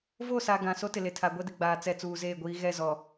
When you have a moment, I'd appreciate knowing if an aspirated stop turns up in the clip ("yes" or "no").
yes